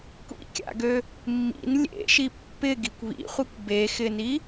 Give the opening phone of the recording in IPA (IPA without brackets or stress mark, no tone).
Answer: kʷ